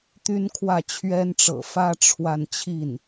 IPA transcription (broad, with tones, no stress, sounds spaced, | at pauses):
t̪ y˥ n kʰ w ä˥˩ t͡ɕʰ ɥ ɛ˥ n ʈ͡ʂ ɤ̰˨˩ f ä˥ ʈ͡ʂʰ w a˥˧ n t͡ɕʰ i˥˩ n